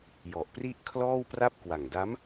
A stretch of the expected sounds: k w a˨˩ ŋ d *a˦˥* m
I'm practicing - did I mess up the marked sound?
no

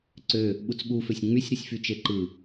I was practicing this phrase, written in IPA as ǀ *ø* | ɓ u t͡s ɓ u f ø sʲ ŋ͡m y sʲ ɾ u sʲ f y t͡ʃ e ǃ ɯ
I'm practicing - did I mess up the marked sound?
no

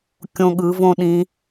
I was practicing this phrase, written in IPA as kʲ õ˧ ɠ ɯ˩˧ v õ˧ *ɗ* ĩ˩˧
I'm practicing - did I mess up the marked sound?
no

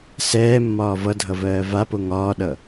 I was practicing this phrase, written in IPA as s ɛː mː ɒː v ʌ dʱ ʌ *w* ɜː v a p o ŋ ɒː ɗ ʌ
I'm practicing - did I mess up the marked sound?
yes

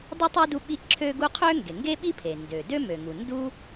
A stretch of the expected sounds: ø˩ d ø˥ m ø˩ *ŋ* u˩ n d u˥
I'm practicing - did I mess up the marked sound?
no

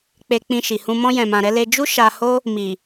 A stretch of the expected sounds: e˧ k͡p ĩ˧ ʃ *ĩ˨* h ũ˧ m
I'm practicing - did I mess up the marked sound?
yes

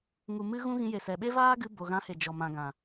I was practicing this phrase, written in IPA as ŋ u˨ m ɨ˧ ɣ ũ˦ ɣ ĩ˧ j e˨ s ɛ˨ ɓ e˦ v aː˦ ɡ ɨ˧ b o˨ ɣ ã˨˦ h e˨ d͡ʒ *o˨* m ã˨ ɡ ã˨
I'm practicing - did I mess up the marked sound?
yes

